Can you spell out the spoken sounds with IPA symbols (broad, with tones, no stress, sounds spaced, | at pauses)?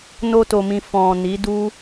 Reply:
n o˦ t o˧ m ĩ˧ f ɔ̃˨ n i˨˦ d u˦